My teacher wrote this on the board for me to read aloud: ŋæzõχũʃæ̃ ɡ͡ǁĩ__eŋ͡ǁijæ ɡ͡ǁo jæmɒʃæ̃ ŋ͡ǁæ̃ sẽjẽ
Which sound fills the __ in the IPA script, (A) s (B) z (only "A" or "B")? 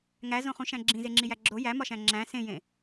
B